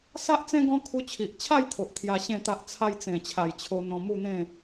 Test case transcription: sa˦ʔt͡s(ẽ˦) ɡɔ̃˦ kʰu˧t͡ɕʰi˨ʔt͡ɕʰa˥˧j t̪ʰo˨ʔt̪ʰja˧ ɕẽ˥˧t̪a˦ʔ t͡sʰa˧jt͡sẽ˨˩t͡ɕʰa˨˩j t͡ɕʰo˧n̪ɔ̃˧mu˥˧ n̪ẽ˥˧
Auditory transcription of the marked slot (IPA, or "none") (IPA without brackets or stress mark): ẽ˦